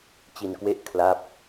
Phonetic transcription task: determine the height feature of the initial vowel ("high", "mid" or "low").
high